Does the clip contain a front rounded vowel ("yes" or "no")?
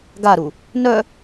yes